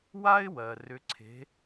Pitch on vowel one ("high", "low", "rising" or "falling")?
high